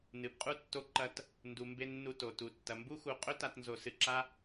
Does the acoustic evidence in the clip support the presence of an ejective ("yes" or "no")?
yes